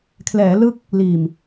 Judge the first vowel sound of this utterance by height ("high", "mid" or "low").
mid